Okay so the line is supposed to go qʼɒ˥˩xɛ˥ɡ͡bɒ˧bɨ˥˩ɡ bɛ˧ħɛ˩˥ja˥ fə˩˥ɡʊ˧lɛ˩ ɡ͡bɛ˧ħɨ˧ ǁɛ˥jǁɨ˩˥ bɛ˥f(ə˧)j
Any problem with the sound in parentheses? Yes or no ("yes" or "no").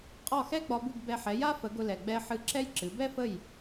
yes